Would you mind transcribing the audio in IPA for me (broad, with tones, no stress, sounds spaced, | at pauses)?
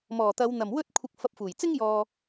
m ɔː˨˩ t̪ ɐ˨˧ w n̪ ɐ˨˩ m w ɵ˥ t̚ kʷʰ ɪ˧ k̚ f ɐ˧ p̚ f uː˨˩ j t͡s ɪ˥ ŋ j ɔː˨